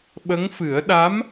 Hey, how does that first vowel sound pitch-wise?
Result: rising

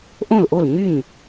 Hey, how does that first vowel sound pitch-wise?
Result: falling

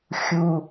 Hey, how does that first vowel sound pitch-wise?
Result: low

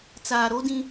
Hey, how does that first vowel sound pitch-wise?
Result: low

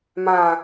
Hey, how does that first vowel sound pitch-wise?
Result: low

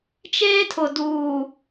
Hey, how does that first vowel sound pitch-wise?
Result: high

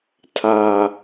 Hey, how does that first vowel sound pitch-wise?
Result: low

